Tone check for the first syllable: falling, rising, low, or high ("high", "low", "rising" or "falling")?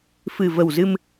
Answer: low